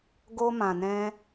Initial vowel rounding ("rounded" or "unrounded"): rounded